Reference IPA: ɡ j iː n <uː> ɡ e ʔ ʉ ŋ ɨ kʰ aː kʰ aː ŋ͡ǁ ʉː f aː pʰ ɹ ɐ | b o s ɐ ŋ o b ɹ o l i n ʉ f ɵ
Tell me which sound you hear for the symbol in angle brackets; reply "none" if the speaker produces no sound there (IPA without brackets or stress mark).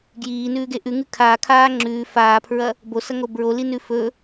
ʉː